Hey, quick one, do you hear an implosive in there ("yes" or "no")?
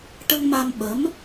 yes